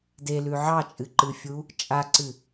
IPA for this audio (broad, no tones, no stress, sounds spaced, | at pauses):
d e l ʉ ʕ ɑ t͡ʃʼ ɨ ǃ ɨ fʲ u | t͡ʃʼ a ǀ ɨ